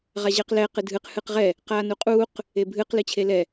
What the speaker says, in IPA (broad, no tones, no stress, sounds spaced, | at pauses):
ʁ a ʑ ɘː q l ɛ q ɨ dʱ ɨ q h ɨ q ʁ ɛ | q aː n u qʼ uː q | e bʱ ɨ q l ɨ t͡ɕʰ e l ɛ